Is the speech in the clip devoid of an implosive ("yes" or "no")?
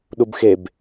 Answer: no